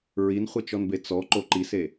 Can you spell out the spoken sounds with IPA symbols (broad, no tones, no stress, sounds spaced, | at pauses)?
ɹ i n χʷ ɨ t͡ʃ ɔ n b e t͡s ɔ ǃ o ǃ i s e